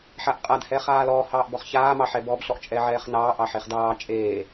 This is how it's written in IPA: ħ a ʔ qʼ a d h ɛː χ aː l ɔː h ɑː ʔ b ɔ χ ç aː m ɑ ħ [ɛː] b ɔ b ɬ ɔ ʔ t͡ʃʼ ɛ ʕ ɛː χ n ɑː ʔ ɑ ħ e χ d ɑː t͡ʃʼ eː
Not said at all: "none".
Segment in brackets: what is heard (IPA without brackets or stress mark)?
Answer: ɛ